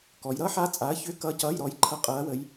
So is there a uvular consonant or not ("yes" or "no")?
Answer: yes